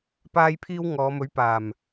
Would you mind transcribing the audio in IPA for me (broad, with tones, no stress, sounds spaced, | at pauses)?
p aː˥ j pʰ iː˥ w ŋ ɔː˨˧ m ɵ˨˥ ɥ p aː˨˩ m